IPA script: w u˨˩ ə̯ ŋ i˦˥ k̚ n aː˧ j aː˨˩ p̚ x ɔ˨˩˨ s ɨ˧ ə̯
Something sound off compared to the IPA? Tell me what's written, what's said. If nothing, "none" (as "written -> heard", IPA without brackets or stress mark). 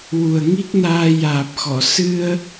none